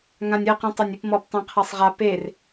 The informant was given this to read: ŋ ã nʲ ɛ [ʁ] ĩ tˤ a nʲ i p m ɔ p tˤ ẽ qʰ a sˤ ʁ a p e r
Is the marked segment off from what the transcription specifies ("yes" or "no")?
yes